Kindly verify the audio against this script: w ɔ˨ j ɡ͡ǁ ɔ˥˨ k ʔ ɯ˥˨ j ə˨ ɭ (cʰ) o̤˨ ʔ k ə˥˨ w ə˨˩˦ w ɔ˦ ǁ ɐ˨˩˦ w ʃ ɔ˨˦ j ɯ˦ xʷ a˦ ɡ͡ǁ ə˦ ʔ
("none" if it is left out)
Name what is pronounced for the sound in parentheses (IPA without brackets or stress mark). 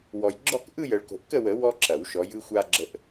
k